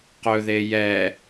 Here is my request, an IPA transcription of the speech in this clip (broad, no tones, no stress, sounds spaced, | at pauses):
q ɵ ð e j ɛ